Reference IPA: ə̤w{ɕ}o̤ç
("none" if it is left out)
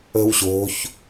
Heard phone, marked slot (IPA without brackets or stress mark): ɕ